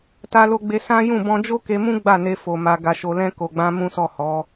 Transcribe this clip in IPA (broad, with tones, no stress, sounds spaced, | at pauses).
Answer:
t a˧ l o˧ ɡ͡b e˧ s ã˦ j ũ˦˨ b ɔ̃˧ d͡ʒ o˦ k e˧ m ũ˦ ɡ͡b a˦˨ n e˧ f o˨ m a˨ ɡ a˨ ʃ o˨ l ɛ̃˧ k o˨ ɡ͡b ã˧ m ũ˦ s ɔ˦˨ h ɔ˨˦